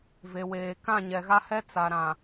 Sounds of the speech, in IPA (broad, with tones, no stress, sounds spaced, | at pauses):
v e˨ w eː˨ k ã˦˨ ɲ ɛ˨ ɣ a˦ h ɛ˦ t͡s a˨ ɾ ã˨